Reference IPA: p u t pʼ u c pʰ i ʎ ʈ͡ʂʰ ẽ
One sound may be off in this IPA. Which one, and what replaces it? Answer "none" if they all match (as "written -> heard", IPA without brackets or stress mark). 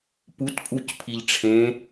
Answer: none